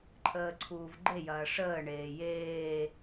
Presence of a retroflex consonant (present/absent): present